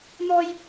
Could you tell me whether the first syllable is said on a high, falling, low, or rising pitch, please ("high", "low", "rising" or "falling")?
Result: high